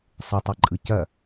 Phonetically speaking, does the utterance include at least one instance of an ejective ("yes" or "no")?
yes